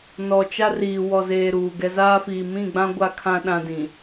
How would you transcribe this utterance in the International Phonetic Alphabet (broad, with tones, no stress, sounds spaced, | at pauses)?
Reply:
n ɔ˨ t͡ʃ a˦ r iː˨ w ɔ˨ z eː˨ ɾ uː˨ ɡ ɛ˦ z aː˦ f iː˨ m ĩ˦˨ ɡ͡b ã˦ ɡʷ a˦ kʰ ã˦ ɗ ã˦ d ĩ˨